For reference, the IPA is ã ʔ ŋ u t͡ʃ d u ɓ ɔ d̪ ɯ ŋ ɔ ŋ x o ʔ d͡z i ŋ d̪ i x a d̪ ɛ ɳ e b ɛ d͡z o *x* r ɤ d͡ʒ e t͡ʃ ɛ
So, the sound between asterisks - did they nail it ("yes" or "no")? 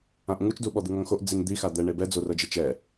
no